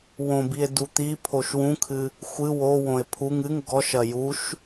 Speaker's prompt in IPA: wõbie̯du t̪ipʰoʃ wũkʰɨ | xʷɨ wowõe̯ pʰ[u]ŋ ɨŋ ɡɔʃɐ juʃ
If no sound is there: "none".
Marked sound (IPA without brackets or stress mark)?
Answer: u